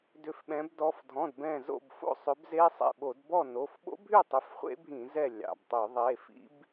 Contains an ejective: no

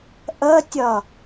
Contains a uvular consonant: no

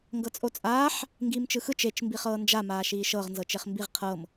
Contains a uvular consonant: yes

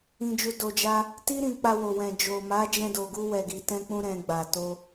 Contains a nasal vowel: yes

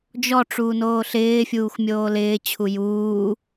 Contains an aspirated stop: yes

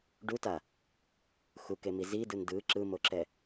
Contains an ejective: no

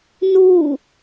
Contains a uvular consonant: no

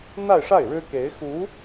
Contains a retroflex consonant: yes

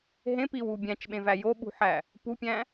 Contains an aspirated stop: no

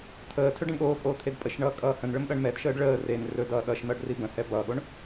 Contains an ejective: yes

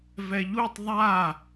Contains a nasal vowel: no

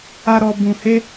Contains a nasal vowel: yes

